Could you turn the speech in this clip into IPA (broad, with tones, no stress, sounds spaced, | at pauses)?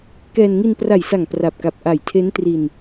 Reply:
k ɛː˧ n ŋ i˧ n p r a˨˩ j s a˨˩ ŋ p r a˨˩ p̚ k a˨˩ p̚ ʔ a˨˩ j tʰ e˦˥ n t r i˧ n